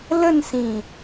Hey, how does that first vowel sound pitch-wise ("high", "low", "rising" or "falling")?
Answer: falling